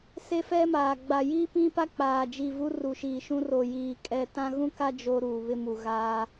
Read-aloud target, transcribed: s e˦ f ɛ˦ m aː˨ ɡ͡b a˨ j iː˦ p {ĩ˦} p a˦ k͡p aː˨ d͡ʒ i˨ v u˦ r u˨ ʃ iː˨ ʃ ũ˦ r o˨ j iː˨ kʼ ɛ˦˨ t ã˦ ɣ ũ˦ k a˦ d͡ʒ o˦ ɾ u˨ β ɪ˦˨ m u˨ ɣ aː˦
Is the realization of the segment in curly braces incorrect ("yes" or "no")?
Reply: no